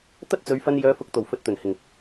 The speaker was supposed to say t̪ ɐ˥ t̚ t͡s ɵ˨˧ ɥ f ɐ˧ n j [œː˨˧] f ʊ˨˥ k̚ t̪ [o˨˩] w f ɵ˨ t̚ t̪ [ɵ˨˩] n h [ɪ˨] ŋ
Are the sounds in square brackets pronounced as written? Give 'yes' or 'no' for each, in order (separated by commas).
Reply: yes, yes, yes, no